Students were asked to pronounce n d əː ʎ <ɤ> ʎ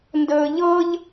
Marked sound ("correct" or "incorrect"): correct